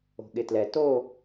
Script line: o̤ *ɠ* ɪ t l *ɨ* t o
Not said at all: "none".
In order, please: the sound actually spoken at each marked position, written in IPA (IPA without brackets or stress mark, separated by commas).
ɠ, ɛ